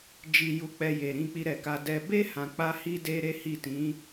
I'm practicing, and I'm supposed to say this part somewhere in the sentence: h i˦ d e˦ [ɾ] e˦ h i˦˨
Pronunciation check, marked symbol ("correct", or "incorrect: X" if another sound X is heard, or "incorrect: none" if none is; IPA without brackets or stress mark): correct